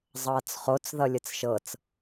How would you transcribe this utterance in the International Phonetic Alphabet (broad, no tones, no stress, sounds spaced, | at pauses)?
zˤ ʌː t͡s χ o t͡s ð ʌ lʲ ə t͡s ʃ ɤ t͡s